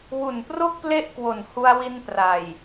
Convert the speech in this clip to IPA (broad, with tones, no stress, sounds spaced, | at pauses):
w u˨˩ n p r o˥˩ k̚ p l e˥˩ ʔ k w o˨˩ n h u˧ a̯ w i˧ n p r a˨˩ j